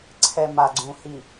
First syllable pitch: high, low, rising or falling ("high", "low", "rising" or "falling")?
low